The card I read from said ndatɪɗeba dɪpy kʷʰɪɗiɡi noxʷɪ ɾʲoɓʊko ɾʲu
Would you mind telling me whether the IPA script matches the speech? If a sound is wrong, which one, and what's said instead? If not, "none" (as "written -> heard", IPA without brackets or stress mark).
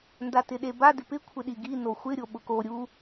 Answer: y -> ɪ